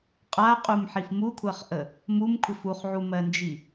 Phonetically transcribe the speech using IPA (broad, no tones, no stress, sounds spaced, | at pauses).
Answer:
qʼ a qʼ u m ħ i f m u kʷʰ ɜ χ ʔ ə | m u m kʷʰ ɪ f u χ ʕ u m ɜ n d͡ʒ i